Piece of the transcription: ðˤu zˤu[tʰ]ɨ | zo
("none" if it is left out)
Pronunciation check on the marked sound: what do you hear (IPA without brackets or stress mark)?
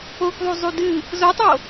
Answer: d